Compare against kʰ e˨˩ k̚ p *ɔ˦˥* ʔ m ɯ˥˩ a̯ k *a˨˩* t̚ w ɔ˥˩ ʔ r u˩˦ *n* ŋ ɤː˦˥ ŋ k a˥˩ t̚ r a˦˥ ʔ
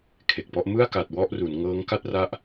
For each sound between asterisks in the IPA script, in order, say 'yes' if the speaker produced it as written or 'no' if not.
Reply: no, yes, yes

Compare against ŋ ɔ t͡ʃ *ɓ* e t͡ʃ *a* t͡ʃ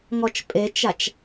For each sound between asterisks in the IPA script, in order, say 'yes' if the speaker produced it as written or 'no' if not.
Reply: no, yes

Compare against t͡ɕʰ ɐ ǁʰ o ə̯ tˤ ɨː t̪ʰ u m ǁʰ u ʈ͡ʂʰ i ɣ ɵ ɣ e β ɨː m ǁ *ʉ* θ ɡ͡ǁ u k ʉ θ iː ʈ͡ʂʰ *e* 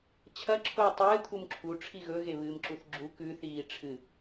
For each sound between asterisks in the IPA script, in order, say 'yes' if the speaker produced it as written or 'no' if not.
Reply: no, no

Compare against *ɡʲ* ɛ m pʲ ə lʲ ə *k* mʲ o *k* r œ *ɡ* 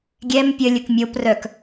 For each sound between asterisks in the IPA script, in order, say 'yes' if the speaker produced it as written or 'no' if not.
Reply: yes, yes, no, no

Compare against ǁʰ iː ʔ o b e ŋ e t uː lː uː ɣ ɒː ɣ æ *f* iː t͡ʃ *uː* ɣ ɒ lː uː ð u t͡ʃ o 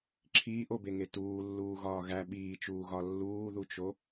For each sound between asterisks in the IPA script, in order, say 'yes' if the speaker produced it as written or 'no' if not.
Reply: no, yes

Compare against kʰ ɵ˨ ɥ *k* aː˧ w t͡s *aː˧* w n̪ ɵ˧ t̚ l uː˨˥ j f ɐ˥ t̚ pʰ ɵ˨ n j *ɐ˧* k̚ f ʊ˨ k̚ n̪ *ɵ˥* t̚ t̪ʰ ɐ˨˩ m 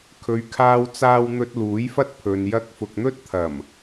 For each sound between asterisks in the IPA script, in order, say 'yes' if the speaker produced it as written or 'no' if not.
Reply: no, yes, yes, yes

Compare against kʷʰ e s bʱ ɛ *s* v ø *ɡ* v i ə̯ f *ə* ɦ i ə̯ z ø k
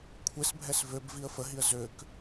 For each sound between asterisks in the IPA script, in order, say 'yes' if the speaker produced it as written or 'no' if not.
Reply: yes, no, yes

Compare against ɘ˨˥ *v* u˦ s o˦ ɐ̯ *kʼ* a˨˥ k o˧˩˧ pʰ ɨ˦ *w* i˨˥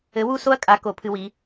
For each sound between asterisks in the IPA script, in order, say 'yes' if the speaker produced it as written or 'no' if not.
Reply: no, yes, yes

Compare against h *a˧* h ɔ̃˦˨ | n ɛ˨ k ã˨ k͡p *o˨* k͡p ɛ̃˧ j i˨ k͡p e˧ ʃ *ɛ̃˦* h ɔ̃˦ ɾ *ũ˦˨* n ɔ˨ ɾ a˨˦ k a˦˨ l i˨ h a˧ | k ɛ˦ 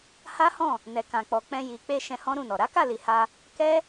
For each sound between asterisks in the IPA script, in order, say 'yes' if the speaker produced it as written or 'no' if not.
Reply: no, no, no, yes

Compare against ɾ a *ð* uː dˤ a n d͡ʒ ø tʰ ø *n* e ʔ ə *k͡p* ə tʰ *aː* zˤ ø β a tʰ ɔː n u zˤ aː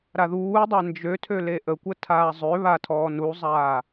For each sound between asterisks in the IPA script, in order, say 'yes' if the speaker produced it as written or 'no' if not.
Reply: yes, no, no, yes

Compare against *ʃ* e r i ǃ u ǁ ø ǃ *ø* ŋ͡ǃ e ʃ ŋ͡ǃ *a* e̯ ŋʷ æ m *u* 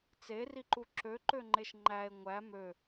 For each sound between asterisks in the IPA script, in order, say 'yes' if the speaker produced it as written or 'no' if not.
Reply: no, yes, no, no

